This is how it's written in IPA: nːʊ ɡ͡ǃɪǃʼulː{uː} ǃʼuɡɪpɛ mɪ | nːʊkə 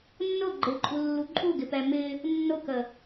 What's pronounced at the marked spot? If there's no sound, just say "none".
u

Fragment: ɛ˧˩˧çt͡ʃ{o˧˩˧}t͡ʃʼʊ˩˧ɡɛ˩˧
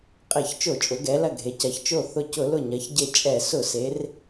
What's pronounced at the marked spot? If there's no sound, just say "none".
o˧˩˧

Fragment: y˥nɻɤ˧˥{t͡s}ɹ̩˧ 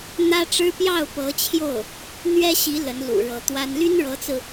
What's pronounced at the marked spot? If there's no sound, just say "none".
t͡s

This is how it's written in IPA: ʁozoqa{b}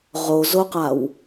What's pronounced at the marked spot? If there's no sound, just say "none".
w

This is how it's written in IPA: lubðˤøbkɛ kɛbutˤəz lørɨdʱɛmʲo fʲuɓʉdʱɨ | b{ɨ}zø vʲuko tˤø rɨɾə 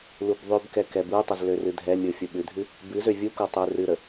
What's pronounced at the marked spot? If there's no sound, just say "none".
ɨ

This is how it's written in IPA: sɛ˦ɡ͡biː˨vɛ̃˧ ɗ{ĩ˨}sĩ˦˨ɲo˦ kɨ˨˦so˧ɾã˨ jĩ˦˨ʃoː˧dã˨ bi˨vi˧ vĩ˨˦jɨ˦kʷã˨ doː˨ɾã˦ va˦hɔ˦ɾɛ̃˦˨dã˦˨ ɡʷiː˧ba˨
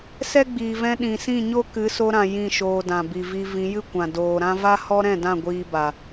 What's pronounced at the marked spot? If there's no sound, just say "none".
ĩ˨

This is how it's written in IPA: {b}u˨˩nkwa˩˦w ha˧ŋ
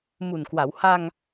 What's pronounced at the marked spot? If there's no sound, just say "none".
m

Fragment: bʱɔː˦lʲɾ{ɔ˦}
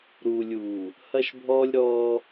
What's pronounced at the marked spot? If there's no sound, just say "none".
ɔː˦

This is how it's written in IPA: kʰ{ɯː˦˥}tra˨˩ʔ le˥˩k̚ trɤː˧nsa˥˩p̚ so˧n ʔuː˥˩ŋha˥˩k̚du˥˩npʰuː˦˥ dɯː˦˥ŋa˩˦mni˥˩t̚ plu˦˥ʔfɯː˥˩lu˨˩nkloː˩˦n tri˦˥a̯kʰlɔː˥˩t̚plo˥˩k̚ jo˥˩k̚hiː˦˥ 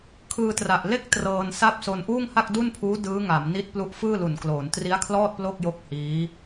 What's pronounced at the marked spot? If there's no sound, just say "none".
ɯː˧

